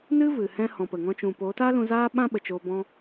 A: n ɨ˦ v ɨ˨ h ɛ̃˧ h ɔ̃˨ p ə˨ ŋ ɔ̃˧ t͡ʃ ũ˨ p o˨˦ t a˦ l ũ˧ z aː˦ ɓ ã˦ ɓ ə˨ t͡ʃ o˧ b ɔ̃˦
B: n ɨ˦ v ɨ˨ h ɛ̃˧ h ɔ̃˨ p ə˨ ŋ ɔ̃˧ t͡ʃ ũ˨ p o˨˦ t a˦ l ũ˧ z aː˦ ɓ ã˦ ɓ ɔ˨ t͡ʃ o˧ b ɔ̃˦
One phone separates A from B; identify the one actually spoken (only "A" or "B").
A